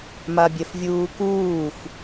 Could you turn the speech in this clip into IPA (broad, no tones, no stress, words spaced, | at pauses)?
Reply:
mabʲɛfvʲuːkuːf